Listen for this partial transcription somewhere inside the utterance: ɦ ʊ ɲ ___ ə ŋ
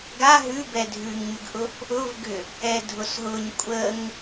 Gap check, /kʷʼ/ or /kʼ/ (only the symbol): kʷʼ